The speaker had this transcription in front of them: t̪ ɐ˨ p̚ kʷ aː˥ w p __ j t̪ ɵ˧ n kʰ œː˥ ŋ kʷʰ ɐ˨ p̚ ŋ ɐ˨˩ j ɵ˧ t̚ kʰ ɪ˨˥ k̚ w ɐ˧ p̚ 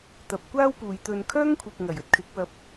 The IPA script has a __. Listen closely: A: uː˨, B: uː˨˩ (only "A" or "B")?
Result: A